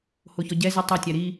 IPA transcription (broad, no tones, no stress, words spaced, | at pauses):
hoçɔɟɛzi tˤɛtʲæ ɾi